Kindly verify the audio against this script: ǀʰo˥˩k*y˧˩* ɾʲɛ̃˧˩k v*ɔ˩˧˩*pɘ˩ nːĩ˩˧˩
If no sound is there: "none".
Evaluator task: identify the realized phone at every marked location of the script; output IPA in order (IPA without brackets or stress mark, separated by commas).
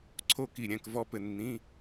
i˧˩, ɔ˦